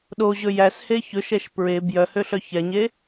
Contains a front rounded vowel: yes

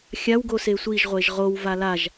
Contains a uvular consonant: yes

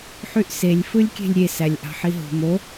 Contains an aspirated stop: no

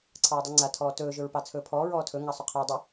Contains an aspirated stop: yes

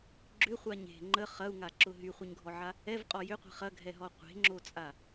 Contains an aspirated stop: no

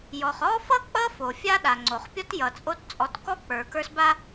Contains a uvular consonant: yes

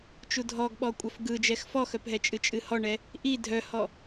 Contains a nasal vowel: no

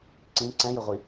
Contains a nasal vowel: yes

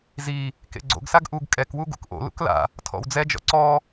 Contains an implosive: no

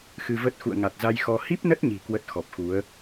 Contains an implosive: no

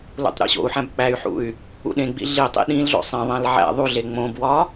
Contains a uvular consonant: no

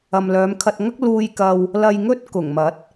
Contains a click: no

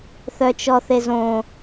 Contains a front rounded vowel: yes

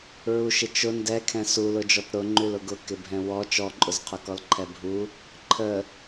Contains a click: yes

